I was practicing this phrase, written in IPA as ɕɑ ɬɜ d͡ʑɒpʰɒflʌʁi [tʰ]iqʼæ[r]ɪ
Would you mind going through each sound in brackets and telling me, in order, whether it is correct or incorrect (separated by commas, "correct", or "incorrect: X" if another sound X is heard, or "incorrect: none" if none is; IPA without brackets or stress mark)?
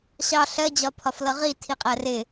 correct, correct